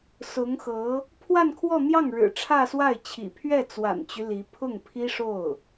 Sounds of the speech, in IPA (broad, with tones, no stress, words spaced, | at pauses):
sʊ˧˥ŋxɤ˧˥ | pʰwa˥˧nkʰwɔ˥˧n̪jɑ˥˩ŋ ɻɻ̩˨˩ʈ͡ʂʰä˥˧swa˥˩ɪ̯ t͡ɕʰḭ˨˩ pʰɥɛ˥˩t͡swa̰˨˩nt͡ɕy˦ li˧˥ pʰʊ˥˩ŋpʰi˥ʂo˥˩ʊ̯